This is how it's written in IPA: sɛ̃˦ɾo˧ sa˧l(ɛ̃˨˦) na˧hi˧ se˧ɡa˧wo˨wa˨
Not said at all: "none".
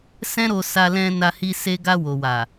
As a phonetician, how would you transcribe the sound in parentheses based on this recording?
ɛ̃˧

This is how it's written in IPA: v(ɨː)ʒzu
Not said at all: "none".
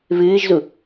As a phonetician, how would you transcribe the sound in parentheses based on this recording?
ɨː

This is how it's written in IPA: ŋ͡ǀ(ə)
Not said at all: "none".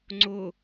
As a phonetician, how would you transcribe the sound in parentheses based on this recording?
ʊ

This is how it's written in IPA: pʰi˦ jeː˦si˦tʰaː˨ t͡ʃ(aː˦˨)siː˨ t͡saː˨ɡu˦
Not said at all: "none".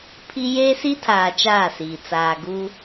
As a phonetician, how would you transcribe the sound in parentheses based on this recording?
aː˦˨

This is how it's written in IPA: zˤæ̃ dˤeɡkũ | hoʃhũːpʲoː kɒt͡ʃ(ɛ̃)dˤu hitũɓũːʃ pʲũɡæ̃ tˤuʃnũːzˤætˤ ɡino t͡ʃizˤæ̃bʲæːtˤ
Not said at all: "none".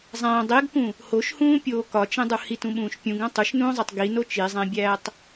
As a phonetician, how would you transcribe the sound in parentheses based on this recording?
ẽ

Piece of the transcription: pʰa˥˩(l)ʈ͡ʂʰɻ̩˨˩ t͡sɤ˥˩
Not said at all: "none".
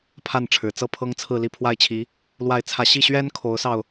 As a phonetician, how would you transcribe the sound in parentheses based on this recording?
n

